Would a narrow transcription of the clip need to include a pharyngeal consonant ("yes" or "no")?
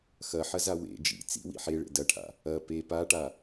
yes